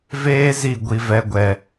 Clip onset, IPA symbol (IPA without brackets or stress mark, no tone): v